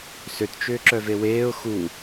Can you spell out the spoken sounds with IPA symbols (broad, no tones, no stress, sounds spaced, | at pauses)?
s ø t t͡ʃ ʏː ǁ œ v e w eː ʊ̯ x u